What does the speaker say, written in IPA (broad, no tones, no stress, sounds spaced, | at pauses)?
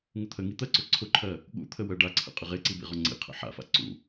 ŋ ʊ t̪ʰ ə ŋ i t̪ ɜ ǀ ʊ ǀʰ ʊ ǃʰ ɜ | ɠ ṵ t̪ʰ ə w ɜ ɖ a ǀʰ ə̰ qʼ ə ʁ e ǀ i b ḭ ʁ ɔ ŋ͡ǀ ḭ qʰ ə̰ ħ a̰ f a̰ ǀ ṵ